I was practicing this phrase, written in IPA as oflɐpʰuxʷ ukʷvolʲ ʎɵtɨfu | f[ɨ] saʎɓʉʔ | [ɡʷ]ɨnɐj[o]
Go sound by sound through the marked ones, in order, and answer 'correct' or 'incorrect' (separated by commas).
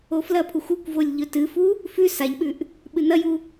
incorrect, incorrect, incorrect